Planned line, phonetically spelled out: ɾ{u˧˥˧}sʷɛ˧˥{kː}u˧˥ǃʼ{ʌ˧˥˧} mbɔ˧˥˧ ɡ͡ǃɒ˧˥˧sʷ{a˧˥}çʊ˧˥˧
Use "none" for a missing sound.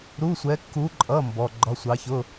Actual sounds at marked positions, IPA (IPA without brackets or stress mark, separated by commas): u˧˥˧, kː, ʌ˧˥˧, ɑ˧˥